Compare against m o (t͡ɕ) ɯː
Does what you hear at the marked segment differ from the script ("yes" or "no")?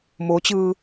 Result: no